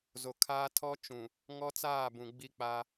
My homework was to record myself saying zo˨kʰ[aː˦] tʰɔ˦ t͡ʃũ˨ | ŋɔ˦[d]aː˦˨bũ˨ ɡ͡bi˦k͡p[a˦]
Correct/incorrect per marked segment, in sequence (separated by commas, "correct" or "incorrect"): correct, incorrect, correct